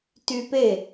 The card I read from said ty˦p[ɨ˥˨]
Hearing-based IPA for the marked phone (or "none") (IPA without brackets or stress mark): e˥˨